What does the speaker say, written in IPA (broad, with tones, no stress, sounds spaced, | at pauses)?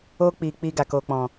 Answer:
oː˦ k͡p iː˨ k͡p iː˧ ɡ a˨ k oː˨ k͡p ɔ̃˨